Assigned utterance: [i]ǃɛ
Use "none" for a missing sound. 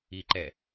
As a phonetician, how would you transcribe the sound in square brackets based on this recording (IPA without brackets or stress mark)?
i